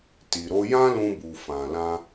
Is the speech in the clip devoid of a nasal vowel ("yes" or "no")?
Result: no